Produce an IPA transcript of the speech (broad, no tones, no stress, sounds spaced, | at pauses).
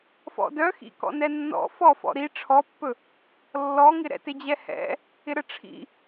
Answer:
f ɔ̰ d œ x ḭ k ɔ̰ n ɛ nː ɔ̰ f ɔ f ɔ̰ ɾ i ʈ͡ʂʰ ɔ pː ɵ | lː ɔ ŋ ɪ ɾ ɛ̰ t ɪ d͡ʑ ɛ h ɛ̰ | ɪ ɾ ə ʈ͡ʂʰ ḭ